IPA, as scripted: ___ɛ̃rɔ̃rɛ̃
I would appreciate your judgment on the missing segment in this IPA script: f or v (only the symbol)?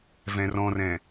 v